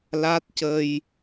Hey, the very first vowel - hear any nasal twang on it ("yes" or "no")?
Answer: no